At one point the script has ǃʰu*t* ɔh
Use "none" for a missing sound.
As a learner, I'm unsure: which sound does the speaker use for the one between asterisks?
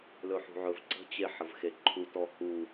t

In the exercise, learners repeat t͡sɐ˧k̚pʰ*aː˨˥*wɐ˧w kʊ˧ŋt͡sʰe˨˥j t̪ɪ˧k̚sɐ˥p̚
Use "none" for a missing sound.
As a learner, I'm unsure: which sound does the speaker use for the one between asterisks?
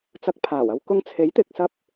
aː˨˩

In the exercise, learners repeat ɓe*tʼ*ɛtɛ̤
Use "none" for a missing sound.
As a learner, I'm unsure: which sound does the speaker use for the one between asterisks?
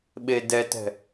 d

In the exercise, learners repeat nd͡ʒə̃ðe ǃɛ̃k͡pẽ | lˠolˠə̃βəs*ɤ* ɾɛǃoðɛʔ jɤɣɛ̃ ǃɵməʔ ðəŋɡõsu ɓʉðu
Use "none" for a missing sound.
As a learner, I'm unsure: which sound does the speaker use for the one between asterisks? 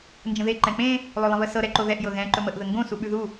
ɤ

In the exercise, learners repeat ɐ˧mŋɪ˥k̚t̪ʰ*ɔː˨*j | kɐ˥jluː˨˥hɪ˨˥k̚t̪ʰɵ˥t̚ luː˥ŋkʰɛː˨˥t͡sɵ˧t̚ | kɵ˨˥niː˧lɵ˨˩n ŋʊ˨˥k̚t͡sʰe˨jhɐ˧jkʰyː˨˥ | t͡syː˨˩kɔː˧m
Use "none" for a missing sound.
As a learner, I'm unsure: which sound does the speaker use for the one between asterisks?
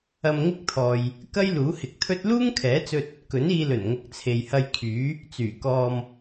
ɔː˨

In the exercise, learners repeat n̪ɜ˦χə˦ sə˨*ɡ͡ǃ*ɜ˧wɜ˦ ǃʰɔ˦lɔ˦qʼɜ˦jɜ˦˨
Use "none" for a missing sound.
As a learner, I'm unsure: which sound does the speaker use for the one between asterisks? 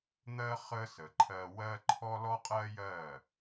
ǃʰ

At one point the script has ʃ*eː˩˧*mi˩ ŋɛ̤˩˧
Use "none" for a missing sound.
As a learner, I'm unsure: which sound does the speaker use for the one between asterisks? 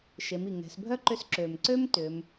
e˩˧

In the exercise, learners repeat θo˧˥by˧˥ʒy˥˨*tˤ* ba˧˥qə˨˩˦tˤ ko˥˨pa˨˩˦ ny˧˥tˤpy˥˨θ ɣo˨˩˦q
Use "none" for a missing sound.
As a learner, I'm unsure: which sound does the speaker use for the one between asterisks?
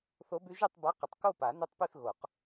tˤ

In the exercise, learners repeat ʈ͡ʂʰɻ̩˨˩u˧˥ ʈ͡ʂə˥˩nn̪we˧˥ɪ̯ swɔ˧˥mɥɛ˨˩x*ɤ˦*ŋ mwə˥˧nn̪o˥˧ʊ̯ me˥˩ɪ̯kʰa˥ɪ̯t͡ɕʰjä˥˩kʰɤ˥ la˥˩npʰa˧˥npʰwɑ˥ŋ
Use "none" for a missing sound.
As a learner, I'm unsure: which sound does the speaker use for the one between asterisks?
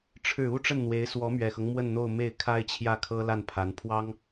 ɤ˦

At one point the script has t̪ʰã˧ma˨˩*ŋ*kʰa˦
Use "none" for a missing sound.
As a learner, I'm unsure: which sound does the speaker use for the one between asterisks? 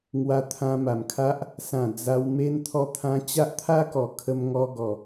m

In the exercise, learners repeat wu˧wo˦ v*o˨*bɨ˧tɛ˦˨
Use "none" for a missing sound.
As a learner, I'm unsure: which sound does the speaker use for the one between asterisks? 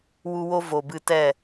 o˨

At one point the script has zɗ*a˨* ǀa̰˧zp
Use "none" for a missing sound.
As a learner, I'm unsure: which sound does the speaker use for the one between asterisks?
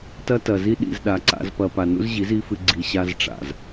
a˨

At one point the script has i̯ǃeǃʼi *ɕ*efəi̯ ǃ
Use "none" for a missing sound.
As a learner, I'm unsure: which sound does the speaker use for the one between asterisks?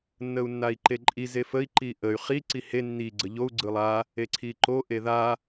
z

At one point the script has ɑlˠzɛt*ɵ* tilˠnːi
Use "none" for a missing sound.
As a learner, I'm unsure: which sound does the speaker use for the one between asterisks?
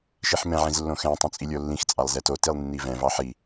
o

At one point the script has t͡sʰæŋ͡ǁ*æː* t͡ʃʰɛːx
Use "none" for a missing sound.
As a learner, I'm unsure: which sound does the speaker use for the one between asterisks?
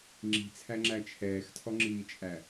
æ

